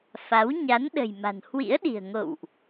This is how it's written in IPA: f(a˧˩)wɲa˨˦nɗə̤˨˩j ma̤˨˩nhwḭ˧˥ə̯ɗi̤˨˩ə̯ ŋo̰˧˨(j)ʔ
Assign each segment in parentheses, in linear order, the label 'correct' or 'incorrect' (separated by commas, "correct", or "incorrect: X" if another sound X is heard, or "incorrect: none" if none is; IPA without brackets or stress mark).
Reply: incorrect: a˨˦, incorrect: w